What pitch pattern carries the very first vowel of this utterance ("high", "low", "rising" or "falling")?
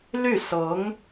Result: falling